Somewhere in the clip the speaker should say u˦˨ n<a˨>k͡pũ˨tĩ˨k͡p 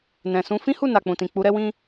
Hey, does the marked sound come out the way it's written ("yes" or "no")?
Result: yes